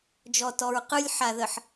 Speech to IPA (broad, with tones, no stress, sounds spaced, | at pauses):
d͡ʒ ɔ˨ t ɔ˨ ɹ q ɯ˦ lʲ ħ a˨ ð ə˨ ħ